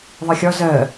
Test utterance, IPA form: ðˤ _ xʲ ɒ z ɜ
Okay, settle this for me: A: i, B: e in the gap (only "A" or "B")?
A